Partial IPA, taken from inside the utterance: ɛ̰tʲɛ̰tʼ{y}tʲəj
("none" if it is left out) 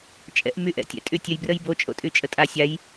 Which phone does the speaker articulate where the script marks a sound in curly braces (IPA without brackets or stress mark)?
y